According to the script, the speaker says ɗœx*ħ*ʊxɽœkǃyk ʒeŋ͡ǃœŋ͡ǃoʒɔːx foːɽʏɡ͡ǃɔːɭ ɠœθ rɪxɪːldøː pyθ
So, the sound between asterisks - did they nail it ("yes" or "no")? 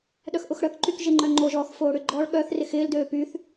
no